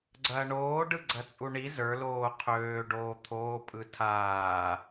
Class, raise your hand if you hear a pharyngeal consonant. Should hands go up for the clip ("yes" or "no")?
no